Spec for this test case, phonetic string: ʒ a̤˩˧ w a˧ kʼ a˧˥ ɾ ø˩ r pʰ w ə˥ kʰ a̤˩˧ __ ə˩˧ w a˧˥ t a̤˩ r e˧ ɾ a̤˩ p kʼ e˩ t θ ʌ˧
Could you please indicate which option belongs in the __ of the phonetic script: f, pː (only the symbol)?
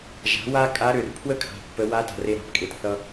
pː